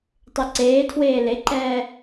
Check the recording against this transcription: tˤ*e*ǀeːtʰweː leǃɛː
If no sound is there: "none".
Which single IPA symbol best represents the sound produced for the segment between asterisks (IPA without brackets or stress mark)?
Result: e